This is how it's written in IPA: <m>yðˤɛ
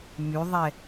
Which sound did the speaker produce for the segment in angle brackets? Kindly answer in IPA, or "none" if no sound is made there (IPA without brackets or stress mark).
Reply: m